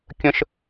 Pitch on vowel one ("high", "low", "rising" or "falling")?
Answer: high